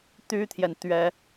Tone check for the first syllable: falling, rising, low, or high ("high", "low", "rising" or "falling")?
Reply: high